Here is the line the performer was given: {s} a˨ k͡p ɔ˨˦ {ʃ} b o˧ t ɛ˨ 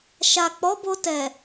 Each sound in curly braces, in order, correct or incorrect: incorrect: ʃ, incorrect: none

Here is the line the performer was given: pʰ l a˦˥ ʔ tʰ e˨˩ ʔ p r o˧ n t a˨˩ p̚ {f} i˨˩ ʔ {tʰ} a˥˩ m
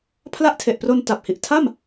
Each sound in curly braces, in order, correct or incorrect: incorrect: h, correct

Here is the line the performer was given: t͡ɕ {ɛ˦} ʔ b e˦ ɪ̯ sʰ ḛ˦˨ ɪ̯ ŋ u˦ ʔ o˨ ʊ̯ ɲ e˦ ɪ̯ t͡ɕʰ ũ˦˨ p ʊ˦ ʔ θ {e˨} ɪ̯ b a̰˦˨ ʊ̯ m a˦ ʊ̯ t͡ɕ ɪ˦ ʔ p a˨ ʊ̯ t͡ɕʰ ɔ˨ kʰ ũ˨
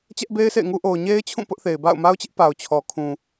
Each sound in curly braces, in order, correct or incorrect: correct, correct

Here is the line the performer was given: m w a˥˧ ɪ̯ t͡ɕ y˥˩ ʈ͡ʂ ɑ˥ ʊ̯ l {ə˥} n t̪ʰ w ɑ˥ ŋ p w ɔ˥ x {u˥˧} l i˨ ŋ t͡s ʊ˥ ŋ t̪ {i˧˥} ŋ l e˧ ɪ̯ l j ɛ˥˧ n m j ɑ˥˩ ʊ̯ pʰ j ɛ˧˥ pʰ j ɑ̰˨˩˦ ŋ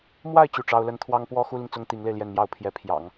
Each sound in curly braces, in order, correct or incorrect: correct, incorrect: u˥, correct

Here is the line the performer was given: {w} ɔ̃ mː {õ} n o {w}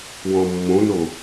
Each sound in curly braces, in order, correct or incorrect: correct, correct, incorrect: none

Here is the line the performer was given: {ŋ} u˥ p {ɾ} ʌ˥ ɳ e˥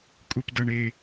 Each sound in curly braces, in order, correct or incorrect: incorrect: kʼ, incorrect: d

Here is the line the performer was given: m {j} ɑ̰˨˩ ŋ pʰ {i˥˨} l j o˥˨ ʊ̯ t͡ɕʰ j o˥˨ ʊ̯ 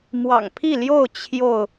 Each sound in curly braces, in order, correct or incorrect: incorrect: w, correct

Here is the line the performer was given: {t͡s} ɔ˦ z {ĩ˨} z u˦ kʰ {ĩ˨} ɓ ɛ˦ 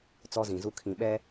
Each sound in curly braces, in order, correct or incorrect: correct, correct, correct

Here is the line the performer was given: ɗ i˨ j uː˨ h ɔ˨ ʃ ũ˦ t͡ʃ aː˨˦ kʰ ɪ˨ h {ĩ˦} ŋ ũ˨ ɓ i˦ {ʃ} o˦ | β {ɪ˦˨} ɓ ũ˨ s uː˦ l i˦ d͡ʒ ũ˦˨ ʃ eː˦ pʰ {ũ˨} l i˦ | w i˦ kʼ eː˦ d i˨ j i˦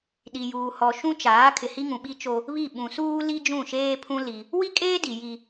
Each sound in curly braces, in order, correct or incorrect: incorrect: i˦, incorrect: t͡ʃ, incorrect: i˦˨, incorrect: ũ˦

